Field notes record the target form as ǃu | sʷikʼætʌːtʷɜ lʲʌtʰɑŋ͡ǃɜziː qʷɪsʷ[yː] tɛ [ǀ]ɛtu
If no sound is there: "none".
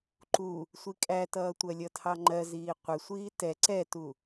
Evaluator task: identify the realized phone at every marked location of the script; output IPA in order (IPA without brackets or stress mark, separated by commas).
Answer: iː, ǀ